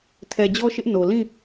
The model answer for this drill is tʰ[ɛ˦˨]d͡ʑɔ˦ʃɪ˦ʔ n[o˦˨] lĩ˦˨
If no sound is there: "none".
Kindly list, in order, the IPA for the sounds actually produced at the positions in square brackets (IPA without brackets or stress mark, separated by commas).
ɛ˨, o˨